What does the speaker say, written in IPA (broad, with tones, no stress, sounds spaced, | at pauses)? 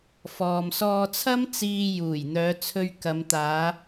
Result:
f ɔː˨ m s ɔː˧ t͡sʰ ɐ˥ m t͡s iː˧ j uː˨˩ j n̪ œː˨˧ t͡sʰ ɵ˧ ɥ k ɐ˨˧ m t̪ aː˨˧